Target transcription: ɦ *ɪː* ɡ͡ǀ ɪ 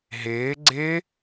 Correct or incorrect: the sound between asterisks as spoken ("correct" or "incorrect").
correct